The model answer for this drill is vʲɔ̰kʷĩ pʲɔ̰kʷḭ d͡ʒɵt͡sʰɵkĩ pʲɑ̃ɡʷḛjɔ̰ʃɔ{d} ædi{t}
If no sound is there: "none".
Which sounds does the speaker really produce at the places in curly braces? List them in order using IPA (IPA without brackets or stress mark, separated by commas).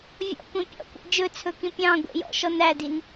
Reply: n, n